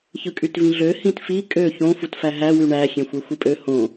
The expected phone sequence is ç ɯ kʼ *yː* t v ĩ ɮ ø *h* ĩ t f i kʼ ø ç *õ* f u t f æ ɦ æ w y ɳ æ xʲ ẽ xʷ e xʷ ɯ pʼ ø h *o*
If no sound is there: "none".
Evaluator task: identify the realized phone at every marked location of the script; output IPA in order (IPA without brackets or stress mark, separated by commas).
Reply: y, h, õ, õ